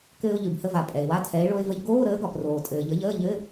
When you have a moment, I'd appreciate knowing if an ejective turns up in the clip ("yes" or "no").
yes